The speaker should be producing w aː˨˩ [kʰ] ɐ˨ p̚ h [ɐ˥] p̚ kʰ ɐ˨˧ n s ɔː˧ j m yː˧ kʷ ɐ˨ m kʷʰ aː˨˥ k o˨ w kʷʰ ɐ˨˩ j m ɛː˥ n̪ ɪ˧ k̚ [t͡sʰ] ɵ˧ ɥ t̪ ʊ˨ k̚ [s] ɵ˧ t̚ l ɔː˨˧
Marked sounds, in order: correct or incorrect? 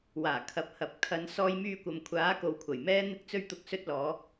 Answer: correct, incorrect, incorrect, correct

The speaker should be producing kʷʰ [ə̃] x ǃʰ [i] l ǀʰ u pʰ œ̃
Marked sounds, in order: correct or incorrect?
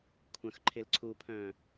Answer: incorrect, incorrect

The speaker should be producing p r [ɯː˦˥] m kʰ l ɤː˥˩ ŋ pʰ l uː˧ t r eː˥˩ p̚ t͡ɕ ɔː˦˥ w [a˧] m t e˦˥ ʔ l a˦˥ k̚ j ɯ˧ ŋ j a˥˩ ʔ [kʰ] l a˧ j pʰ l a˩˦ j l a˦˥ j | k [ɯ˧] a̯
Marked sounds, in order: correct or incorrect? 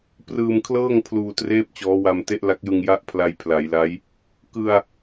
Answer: incorrect, correct, incorrect, correct

